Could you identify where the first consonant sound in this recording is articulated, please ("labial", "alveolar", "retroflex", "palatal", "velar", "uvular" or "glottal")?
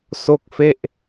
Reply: alveolar